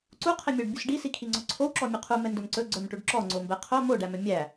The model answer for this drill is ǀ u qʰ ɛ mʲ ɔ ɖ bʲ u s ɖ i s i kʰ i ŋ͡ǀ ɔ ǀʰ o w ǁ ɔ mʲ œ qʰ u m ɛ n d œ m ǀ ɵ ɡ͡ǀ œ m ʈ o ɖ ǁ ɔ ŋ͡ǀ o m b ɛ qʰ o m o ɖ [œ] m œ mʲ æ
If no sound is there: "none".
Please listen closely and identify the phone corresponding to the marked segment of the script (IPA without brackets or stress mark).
æ